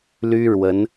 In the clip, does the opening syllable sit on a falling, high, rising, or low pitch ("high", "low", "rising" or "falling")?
high